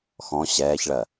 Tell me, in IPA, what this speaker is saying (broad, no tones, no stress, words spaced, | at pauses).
xɔ̃ ɕɛːçɭɜ